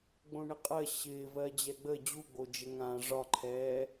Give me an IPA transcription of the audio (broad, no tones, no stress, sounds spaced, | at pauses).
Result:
ɡ͡b õ ɳ ɪ qʼ ɜ ɕ ɪː v ɜ d͡ʑ ɛ ɡ͡b ə d͡ʑ u ɡ͡b o d͡ʒ ə ŋ ãː ʐ ɒ ǃʰ ɛː